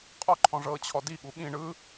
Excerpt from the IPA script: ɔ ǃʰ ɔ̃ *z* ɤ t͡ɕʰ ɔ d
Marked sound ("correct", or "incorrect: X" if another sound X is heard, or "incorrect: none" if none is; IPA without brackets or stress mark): incorrect: ʐ